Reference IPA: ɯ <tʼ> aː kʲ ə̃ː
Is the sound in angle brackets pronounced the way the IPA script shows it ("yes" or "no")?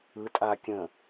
yes